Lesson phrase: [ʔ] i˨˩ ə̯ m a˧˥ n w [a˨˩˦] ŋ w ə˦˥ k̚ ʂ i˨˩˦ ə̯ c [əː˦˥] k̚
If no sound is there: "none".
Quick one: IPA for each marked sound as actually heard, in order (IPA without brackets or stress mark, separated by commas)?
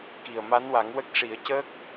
k, a˨˩˦, əː˦˥